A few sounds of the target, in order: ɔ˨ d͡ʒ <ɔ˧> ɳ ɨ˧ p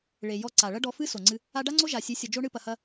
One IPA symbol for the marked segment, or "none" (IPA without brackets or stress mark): o˧